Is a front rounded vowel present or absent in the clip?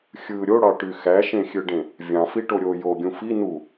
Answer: present